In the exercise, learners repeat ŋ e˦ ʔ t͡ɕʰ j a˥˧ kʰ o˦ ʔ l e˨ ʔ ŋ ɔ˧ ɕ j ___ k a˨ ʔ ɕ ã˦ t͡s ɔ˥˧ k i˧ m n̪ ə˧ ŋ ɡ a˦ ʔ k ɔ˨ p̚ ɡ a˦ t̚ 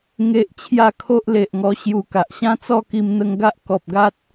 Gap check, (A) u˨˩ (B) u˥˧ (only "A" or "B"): A